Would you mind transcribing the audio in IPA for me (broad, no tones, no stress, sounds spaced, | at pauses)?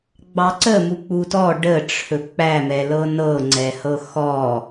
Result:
ɡ͡b ɑ ǀ ə m u k͡p u t ɔ ɖ ə ʈ͡ʂʰ ɵ k͡p æ m ɛ l ɤ n ɤ ŋ͡ǀ ɛ h ɤ x ɔ